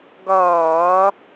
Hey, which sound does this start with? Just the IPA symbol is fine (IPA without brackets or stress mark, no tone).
ɡ